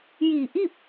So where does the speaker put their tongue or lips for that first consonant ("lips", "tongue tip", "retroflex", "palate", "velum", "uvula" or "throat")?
palate